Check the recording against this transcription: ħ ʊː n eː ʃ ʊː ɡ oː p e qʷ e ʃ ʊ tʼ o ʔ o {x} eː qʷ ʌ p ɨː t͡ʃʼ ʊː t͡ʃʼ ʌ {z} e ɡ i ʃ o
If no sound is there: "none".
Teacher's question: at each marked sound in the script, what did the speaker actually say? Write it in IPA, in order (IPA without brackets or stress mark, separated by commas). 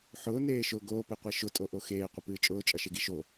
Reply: x, ʃ